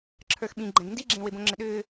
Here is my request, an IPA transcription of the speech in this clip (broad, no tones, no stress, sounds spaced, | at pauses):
ǁʰ ə˞ x ɓ ĩ ɡ͡ǃ ɛ̃ ɡ n d i ɡ͡ǁ ẽ w e b õ ŋ͡ǁ ɘ ɗ ʏː